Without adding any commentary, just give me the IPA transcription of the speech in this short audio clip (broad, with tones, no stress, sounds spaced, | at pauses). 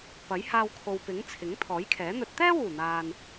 p ɐ˨˥ j h aː˧ w kʰ o˨ w p ɪ˨˥ ŋ t͡sʰ ɪ˨˥ ŋ t̪ʰ ɔː˨˥ j kʰ ɛː˨˥ n̪ ɵ˧ t̚ t̪ ɛː˥ w uː˨˩ n̪ aː˨ n